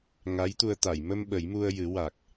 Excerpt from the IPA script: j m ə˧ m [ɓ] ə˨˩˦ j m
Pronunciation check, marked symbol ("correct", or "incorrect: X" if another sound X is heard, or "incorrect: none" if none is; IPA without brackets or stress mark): correct